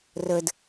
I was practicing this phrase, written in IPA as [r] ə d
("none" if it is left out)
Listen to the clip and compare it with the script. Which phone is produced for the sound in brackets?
r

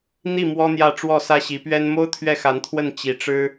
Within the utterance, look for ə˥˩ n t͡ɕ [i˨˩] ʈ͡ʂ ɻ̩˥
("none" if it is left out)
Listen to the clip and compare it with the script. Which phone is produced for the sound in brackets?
i˧˥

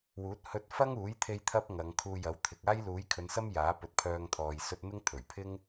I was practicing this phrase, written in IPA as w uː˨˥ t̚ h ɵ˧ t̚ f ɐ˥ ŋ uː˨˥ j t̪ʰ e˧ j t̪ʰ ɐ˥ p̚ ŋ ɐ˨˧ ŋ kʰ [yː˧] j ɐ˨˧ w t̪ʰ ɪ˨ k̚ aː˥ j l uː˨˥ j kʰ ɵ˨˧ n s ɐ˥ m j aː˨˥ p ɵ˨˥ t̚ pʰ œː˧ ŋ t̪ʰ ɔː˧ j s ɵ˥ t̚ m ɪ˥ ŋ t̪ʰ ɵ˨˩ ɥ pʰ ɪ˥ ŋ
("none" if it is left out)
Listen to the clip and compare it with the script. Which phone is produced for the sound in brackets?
uː˧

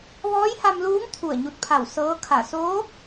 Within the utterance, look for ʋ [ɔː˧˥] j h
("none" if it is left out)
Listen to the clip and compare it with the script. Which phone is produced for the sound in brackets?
ɔː˧˥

